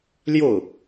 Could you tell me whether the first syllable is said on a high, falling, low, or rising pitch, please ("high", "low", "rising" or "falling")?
falling